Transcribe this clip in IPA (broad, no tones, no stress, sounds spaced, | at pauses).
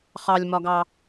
χ ɑ lʲ m ɒ ɡ ɑ